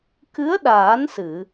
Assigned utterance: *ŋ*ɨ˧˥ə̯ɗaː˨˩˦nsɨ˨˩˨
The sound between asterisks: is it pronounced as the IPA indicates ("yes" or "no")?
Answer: no